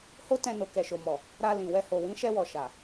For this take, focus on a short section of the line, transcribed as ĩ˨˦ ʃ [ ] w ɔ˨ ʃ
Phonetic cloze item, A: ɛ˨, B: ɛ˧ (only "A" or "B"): B